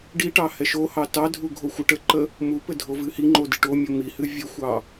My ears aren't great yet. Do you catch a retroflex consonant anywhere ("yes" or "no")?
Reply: yes